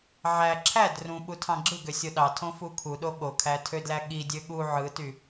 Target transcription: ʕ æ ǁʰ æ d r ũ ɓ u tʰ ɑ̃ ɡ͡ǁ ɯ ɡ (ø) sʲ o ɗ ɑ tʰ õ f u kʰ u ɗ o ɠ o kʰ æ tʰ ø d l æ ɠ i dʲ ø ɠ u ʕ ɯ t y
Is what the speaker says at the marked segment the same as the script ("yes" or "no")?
yes